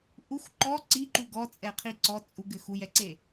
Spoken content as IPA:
ʔ u x ǃ ɔ ǀ i ǃ u ɡ ɔ t͡sʼ ɛ qʰ i ǀ ɔ t͡sʼ u ɡ ɘ x u j ɛ ǀ e

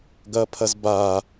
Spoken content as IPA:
ɡ ɐ pʰ ɐ z b a

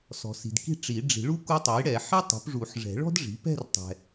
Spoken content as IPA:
s ɔ̤˨ s i̤˨ d k i̤˥˧ ʈ͡ʂ i˨˩˦ ɖ͡ʐ i̤˨˩˦ ɭ u˥ k u˧˥ tˤ ɛ˩˥ j ɽ ɛ˨˩˦ ħ i˥ tˤ ṳ˩˥ p ʐ u˨˩˦ ħ ʐ ɛ̤˨˩˦ ɭ ɔ̤˥ d ʐ i̤˩˥ p ɛ̤˥˧ r tˤ ɛ̤˨

